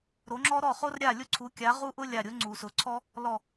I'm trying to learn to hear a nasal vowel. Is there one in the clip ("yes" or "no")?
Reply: no